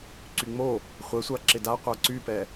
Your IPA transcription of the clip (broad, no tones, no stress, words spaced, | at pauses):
ǀyŋ͡mo | χʷɛsʷa ǁɪda qʷaǀypɛ